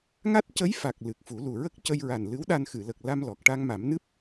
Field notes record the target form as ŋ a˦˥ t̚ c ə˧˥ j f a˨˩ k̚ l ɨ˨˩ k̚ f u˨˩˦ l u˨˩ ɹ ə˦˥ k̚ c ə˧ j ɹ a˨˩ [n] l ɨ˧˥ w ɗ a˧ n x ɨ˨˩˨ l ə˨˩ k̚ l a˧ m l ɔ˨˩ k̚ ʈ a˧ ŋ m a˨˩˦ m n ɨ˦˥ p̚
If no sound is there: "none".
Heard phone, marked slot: n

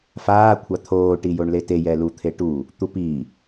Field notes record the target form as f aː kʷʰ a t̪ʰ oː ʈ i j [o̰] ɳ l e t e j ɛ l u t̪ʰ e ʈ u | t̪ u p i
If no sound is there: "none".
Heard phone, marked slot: o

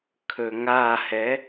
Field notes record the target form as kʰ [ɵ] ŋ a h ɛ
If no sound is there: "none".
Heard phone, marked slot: ɵ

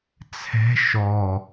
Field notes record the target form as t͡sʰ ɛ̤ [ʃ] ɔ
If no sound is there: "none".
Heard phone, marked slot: ʃ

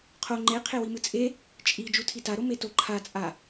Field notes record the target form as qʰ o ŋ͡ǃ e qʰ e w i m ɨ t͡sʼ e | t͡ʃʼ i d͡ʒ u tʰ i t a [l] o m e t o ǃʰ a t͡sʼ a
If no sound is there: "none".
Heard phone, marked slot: ɾ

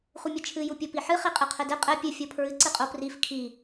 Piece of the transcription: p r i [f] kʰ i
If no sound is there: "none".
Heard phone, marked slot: f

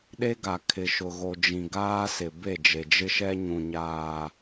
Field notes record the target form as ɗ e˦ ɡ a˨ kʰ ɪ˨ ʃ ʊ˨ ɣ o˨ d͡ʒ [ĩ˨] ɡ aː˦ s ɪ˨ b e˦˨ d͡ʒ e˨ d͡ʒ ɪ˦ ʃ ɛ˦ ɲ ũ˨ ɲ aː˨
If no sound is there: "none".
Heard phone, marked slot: ĩ˨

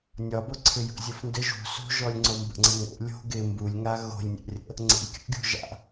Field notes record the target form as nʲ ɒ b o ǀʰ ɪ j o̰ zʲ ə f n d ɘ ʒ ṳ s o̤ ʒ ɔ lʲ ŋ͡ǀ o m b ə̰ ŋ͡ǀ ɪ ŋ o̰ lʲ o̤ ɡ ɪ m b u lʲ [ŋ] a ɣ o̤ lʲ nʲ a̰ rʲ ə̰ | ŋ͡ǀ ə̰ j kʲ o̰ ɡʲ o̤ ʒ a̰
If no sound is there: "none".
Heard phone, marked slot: ŋ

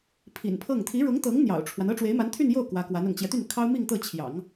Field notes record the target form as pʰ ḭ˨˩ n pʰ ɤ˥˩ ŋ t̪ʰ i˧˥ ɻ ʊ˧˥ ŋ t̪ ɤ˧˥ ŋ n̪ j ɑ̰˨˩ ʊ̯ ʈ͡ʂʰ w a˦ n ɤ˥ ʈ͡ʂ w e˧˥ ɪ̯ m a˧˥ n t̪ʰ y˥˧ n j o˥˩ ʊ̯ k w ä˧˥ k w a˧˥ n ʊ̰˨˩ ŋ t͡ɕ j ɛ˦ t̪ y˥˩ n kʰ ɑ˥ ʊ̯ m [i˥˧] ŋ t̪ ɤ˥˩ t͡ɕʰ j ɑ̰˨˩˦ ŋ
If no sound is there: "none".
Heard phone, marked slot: i˥˧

